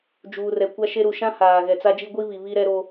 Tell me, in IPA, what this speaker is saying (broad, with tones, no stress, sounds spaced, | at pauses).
d͡ʒ uː˨ r ɛ˨ kʷ a˦ ʃ e˦ ɾ u˨ ʃ ã˦ h aː˨ ɣ ɛ˨ t͡s a˦ d͡ʒ i˦ ɡʷ i˦ β i˨ β i˦ ɾ ɛ˦ ɾ o˦